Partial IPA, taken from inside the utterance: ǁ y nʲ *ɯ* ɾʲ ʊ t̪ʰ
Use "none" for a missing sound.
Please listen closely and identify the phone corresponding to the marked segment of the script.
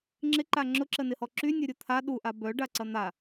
ə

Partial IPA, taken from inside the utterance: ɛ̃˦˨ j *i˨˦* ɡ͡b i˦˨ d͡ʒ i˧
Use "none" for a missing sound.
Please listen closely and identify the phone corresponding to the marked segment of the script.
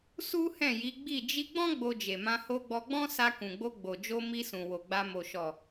i˨˦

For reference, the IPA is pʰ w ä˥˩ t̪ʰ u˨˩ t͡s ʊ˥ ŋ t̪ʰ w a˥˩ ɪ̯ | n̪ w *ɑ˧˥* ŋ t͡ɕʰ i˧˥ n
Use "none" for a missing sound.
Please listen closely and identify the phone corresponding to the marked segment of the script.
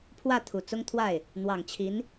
ɑ˨˩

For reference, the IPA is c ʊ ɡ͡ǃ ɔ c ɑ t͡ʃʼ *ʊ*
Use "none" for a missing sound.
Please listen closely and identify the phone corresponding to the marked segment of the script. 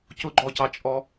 ɔ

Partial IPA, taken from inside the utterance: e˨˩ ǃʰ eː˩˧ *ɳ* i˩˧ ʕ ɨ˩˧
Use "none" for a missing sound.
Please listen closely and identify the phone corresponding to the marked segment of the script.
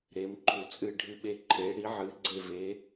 ɽ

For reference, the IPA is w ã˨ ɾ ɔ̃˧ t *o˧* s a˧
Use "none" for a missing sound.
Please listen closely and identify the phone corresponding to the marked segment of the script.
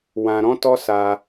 ɔ˧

